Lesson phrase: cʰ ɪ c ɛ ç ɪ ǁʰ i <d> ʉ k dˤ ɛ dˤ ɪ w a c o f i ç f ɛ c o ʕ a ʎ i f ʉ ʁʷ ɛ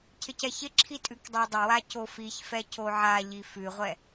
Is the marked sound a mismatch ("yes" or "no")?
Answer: yes